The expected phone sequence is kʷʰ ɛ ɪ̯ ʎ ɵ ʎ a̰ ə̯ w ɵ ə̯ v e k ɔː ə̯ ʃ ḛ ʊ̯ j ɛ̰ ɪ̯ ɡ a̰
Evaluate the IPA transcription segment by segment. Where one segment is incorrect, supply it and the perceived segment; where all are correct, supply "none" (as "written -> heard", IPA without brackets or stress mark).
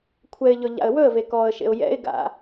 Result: none